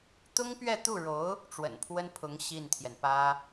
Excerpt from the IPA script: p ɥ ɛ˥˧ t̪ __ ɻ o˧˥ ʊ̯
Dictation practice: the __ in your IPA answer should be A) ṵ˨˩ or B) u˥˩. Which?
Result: B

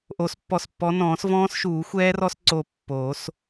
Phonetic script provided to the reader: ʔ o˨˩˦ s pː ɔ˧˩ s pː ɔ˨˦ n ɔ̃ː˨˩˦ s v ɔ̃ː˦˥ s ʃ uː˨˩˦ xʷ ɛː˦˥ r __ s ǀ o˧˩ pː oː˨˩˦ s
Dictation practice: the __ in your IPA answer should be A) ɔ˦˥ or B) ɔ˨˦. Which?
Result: A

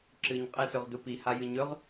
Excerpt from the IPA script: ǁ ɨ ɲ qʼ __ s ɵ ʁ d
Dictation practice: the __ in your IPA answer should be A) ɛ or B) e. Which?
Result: B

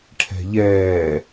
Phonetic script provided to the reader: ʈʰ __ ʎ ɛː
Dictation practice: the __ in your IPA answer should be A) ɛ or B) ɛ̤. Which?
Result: B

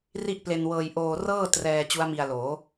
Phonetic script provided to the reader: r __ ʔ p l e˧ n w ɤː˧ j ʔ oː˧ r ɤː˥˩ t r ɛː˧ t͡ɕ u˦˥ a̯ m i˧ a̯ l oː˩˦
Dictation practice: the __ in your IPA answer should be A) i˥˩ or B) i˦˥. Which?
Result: A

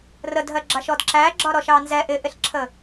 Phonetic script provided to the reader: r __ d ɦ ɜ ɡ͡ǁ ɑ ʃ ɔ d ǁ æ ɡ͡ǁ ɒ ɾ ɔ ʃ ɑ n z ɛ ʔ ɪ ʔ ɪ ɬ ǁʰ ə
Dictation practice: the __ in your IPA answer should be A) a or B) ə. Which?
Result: B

